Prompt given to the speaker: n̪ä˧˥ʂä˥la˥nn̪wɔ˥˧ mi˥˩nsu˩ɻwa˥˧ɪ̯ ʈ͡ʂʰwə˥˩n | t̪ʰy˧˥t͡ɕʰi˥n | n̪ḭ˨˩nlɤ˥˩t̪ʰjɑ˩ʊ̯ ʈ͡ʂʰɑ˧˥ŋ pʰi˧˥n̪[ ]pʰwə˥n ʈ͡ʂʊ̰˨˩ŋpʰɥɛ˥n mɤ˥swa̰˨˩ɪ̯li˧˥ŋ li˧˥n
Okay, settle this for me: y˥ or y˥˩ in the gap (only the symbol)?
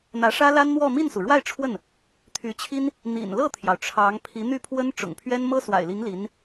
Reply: y˥˩